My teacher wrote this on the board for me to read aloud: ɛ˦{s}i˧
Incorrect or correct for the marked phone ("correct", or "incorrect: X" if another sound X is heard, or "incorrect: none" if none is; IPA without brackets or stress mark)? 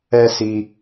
correct